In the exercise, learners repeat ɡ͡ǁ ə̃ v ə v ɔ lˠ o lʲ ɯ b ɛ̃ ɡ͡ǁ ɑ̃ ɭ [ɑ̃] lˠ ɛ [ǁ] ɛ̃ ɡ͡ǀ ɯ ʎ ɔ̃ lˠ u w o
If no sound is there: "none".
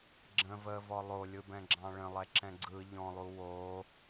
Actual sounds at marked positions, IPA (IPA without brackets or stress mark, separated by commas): ə̃, ǁ